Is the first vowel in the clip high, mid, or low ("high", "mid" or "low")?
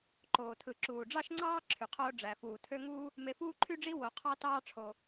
mid